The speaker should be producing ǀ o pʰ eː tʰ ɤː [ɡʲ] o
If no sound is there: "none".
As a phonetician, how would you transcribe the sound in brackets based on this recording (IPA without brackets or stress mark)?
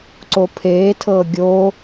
ɡʲ